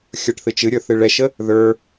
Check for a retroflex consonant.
present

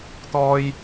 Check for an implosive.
absent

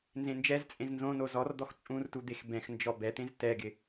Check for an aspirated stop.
absent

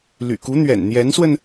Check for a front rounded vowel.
present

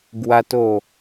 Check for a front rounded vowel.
absent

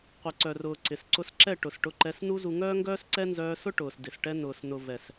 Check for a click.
present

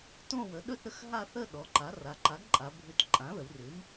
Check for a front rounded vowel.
absent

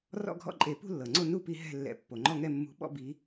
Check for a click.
present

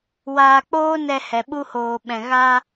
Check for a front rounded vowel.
absent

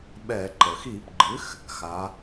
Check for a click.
present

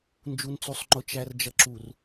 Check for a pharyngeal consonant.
absent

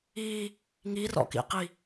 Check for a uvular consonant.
present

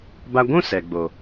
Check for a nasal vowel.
present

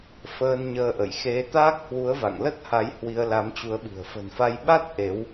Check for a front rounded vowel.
absent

